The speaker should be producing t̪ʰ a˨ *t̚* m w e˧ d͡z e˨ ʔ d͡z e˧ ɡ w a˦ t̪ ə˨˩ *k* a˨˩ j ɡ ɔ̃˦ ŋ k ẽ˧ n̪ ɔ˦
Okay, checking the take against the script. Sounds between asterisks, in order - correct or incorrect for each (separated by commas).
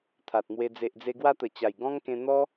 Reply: correct, incorrect